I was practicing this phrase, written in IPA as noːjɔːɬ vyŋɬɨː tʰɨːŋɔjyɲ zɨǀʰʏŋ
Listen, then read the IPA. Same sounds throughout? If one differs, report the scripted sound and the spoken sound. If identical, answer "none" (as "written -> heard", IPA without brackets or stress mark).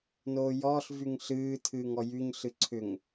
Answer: z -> ɬ